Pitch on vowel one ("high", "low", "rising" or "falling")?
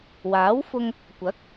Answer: rising